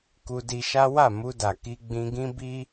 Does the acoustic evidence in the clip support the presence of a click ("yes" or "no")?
no